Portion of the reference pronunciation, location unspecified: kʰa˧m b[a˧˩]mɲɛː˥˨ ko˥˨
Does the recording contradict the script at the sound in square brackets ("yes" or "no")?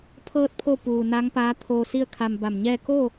no